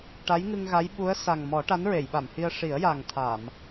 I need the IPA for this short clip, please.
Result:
ʈ a˧˥ j ŋ ɨ˧ ŋ ɣ a˧˥ j ɓ u˧˥ ə̯ s a˨˩ ŋ m ɔ˨˩˦ ʈ a˧˥ n ɹ e˨˩˨ j ɓ a˨˩˨ m h i˧ ə̯ ʂ i˨˩˦ ə̯ j a˨˩ ŋ t̪ʰ a˨˩˨ m

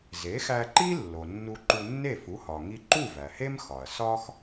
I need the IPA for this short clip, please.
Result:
z e˩˥ x æ˧ ǃ i˥ lː o˩ nː u˧ ǃ u˧ nː e˥˩ f u˩˥ h ɒ˩ ŋ i˧ ǃ u˥˩ v æ˩ h e˥ m x ɒ˩ ɐ̯ s ɒ˥ x

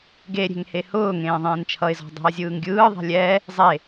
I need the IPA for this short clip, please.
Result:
ɡ e ɾʲ e̤ ŋ h e h ʊː ŋ ẽː ðˤ ẽː n t͡ʃʰ ʌ ɪ̯ z ɔ̤ dˤ ɛ̤ ə̯ zʲ ɯː ŋ ɡʲ ɯː ðˤ ɛ̤ lʲ ɛ | zˤ e

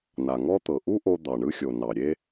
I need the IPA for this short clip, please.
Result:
n a˩ ŋ ɔ˥ t̪ ɤ˩ ʔ u˥ ʔ o˧ d̪ ɑ˩ ɳ ɯ˧ xʲ o˩ n ɑ˩ ɾʲ e˧

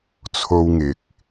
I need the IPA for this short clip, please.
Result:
t͡sʰ o˥ w ŋ ɪ˨ k̚

